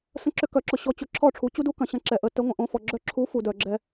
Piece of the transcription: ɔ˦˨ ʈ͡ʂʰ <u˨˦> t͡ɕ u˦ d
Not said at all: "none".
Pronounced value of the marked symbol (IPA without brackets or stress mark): u˨˦